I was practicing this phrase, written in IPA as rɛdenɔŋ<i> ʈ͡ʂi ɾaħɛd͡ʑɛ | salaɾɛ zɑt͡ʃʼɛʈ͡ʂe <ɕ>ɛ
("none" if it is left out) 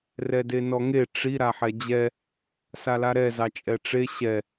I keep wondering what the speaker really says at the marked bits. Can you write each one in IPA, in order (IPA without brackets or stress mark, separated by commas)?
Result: e, ɕ